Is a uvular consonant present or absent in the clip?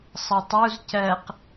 present